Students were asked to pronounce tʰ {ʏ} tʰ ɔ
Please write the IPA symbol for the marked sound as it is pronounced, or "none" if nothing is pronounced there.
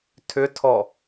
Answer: ʏ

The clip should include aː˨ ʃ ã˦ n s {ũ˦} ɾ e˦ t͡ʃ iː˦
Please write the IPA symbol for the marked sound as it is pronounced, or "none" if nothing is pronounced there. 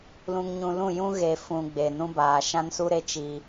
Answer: u˦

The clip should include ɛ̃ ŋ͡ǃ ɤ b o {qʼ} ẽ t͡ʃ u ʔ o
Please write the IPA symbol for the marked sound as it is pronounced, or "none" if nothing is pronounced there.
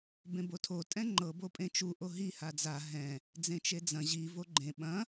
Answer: pʼ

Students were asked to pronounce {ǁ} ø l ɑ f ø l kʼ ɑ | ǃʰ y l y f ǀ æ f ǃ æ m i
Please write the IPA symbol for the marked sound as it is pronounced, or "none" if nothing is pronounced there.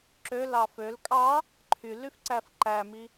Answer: ǁ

